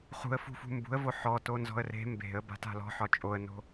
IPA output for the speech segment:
χ ṳ ə̯ f ṳ f ṳ m b ṳ ə̯ v o ħ ɔ t o n z ɔ̤ ə̯ r e̤ m b e̤ ə̯ b a̤ t a̤ l ɔ̤ ħ ɒ t͡ʃʼ o ə̯ n o̤

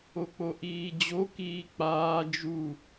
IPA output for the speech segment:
o k͡p o ʔ iː d͡ʑ o k iː k͡p aː d͡ʒ u

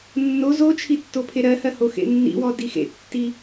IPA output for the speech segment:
nː o z o t͡ʃʰ i tː o pʰ e ɾ ɜ h ɜ h o x ḛ nː ḭ w ɔ d i x ḛ tː i

